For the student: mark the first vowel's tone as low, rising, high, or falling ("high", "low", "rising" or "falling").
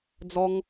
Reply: high